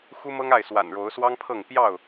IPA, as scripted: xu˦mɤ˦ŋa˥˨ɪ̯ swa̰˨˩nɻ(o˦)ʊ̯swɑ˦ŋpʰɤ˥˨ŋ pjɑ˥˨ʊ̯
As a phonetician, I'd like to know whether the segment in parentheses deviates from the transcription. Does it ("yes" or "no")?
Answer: yes